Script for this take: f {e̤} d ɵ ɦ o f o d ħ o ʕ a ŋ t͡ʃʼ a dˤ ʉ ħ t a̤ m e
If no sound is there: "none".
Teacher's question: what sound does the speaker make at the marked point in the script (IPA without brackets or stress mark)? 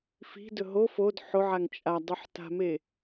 i̤